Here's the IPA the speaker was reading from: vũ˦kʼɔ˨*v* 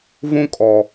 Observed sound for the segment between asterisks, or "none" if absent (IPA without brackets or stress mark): none